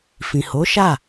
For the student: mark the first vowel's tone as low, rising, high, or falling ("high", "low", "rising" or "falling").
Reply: low